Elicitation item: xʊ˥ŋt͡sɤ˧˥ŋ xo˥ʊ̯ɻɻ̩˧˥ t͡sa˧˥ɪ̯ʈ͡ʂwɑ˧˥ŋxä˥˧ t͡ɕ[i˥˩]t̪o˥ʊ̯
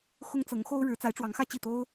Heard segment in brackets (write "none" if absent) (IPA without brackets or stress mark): i˥˩